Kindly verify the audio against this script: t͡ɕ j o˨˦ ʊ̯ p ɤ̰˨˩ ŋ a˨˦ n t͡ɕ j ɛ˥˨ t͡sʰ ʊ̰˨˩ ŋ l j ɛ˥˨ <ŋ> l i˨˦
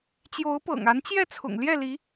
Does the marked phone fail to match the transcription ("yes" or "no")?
yes